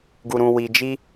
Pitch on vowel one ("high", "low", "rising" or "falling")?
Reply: low